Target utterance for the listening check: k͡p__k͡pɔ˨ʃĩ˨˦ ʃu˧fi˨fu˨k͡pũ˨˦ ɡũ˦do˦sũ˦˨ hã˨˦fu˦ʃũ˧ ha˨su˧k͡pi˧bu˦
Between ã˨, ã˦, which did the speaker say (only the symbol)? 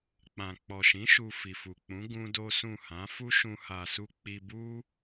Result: ã˨